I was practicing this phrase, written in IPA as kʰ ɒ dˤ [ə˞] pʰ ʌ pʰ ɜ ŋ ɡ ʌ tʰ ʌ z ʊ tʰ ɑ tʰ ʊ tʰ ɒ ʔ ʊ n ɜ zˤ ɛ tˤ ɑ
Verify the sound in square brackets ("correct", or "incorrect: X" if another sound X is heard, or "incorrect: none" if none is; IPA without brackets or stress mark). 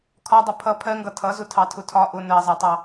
incorrect: ʌ